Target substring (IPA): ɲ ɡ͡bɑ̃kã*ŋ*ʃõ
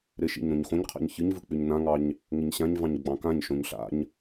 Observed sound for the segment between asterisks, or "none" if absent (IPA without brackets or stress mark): ɲ